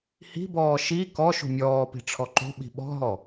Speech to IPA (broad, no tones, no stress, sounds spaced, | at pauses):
h i̤ b ɔː ʃ i k ɔ ʃ ṳ mʲ ɔː p i̤ ʈ͡ʂʰ ɔ ǃ o̤ ɓ i̤ ɓ ɔ̤ ɦ ɔ